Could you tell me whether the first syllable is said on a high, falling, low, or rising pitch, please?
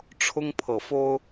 high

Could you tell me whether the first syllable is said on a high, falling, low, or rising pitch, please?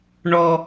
high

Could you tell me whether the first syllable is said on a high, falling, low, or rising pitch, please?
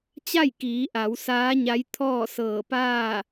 falling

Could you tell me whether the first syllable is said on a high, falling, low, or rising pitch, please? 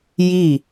falling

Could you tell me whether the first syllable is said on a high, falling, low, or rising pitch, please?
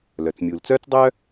low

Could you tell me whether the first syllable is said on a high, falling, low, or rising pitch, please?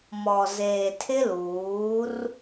low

